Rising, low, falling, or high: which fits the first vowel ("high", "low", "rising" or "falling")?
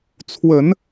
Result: low